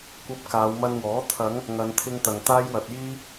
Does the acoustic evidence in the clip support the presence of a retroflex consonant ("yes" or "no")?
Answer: no